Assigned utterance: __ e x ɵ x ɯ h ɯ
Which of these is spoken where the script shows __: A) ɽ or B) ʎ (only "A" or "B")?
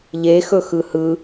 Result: B